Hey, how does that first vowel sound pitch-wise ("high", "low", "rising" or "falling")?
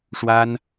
high